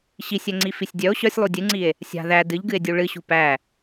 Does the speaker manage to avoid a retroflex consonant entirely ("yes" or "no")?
no